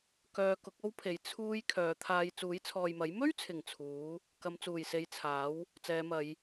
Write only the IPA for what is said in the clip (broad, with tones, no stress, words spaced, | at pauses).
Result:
kœː˧kʊ˨˥k̚o˥wpʰe˨˥j t͡sʰuː˥j kʰœː˨˧t̪ʰaː˧j t͡suː˨˥jt͡sʰɔː˨jmɐ˨˥j mɵ˥ɥt͡sʰɪ˨˩ŋ t͡sʰuː˨˥ | kɐ˨˧mt͡suː˨˩jse˨˧j t͡sʰaː˨˥w | t͡sɛː˨˧mɐ˨˧j